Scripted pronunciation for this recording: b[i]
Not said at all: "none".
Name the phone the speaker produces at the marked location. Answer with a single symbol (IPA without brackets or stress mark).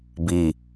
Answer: i